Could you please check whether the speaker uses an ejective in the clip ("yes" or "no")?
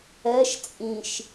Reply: yes